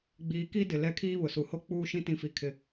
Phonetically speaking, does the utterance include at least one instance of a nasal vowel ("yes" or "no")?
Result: yes